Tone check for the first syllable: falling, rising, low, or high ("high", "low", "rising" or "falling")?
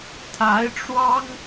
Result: rising